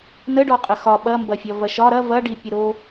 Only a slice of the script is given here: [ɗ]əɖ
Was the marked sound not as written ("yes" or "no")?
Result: yes